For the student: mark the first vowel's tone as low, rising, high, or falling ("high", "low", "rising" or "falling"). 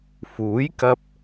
rising